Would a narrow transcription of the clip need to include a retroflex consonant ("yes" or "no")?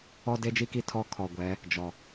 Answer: no